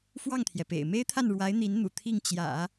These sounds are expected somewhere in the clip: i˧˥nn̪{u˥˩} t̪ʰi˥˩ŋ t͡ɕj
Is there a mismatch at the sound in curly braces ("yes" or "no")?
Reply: yes